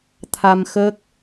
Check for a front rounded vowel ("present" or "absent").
absent